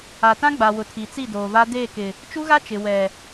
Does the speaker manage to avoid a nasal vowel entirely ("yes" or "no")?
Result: no